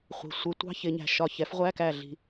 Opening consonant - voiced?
no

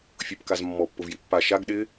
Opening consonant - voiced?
no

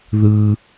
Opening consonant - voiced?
yes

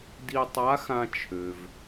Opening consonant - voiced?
yes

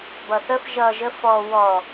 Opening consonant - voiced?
yes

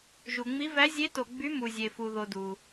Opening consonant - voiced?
yes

